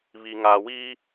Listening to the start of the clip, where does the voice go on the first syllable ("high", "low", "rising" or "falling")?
low